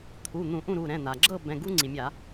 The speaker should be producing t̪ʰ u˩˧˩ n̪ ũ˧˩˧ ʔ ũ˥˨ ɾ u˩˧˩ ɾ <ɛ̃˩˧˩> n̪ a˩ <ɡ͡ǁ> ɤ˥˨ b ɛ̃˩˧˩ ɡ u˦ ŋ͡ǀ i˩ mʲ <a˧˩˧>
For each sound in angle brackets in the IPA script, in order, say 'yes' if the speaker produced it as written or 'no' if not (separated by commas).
yes, yes, yes